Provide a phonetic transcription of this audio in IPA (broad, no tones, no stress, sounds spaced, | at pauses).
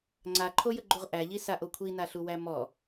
ŋ͡ǀ a ǃʰ o j ə ɡ͡ǃ u ʁ ʔ æ ʎ i s a ʔ o kʷʰ i n a ɬ u w æ m ɔ